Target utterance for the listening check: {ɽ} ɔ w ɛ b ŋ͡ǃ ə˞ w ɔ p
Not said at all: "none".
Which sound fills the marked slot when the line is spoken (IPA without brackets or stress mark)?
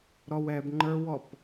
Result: ɾ